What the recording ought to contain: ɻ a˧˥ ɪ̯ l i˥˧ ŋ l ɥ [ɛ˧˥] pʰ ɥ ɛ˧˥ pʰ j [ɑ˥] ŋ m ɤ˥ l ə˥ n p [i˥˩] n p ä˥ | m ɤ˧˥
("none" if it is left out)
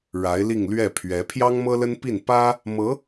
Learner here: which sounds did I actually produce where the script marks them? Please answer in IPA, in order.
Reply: ɛ˥˩, ɑ˥, i˥˩

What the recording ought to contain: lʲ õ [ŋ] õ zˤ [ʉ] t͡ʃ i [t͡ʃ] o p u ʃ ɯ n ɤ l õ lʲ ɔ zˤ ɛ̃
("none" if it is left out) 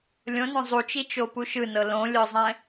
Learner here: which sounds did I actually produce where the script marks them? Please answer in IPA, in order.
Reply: n, u, t͡ʃ

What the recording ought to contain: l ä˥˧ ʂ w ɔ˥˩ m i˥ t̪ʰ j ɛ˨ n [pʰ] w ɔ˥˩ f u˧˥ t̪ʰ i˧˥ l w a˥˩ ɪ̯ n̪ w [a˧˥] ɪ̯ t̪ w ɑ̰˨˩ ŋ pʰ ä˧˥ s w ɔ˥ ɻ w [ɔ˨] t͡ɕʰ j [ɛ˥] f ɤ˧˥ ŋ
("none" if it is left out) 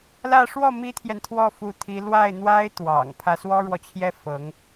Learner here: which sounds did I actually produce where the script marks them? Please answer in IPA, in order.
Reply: t̪ʰ, a˥, ɔ˨, ɛ˥

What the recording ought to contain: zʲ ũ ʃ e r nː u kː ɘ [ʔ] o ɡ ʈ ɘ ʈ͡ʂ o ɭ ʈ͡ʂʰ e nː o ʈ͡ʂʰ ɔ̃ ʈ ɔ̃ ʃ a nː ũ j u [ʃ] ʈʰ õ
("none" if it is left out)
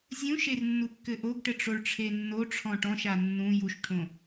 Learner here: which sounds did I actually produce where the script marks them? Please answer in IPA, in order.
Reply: ʔ, ʃ

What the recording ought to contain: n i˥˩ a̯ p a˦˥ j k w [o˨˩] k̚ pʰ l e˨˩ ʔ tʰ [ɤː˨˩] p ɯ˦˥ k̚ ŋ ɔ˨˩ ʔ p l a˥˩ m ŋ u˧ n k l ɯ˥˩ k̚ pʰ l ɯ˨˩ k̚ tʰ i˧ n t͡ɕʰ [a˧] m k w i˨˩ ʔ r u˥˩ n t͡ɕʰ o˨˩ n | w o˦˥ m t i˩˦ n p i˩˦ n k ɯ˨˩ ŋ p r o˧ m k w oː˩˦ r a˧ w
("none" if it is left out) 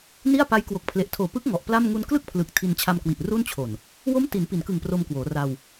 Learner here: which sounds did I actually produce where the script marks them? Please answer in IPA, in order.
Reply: o˨˩, oː˨˩, a˧

